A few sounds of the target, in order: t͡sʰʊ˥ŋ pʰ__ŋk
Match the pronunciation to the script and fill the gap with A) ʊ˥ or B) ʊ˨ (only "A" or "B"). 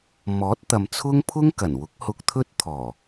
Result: A